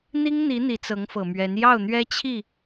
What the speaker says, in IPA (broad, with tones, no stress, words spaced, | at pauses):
n̪i˥ŋn̪i˧˥ n̪i˧˥t͡sɤ˧˥ŋfɤ˨˩mɥɛ˧˥n jɑ˥˩ʊ̯n̪ɥɛ˥ t͡ɕʰi˥˩